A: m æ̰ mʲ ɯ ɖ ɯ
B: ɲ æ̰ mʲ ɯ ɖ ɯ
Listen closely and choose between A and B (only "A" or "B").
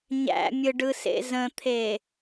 B